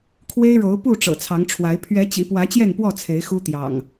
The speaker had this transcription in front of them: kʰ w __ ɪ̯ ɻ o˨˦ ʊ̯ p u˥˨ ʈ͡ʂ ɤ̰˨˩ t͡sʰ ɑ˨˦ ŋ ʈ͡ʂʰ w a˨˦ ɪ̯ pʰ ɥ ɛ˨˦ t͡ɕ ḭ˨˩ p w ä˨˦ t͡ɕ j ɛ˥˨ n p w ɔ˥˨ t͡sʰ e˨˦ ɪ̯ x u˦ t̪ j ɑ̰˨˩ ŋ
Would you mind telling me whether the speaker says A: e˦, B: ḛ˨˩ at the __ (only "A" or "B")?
A